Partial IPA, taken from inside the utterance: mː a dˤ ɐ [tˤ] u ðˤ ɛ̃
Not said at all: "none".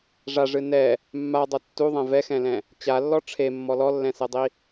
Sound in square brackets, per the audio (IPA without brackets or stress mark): tː